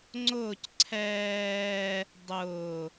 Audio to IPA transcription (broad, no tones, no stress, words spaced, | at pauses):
ŋ͡ǀʊːc ǀʰɛː | dˤʊː